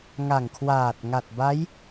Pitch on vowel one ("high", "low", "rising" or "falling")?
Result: low